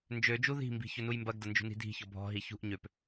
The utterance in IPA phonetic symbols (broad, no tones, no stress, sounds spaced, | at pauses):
n d͡ʒ ø d͡ʒ u ð i̤ m b i̤ ç ɵ n u j m b ɐ ɡ d ɐ n d͡ʒ ṳ n i̤ dʱ i̤ ç ɔ bʱ ɔ̤ ɦ i ç ṳ ʔ ɲ ø p